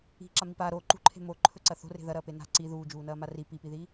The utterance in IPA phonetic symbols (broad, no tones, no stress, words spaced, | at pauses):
i̤ǁami pa ɾo ǃṳǃʰe̤ moǃʰɵǀɐ θo̤re̤ ðɐɾɐːpe na̤ ǀi ðuːd͡ʒuːnɐːma ri pipiðiː